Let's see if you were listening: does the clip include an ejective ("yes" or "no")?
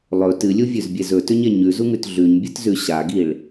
no